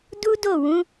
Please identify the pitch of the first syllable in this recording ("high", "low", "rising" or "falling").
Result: high